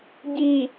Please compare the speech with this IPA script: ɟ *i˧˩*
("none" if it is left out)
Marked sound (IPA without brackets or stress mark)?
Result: i˧˩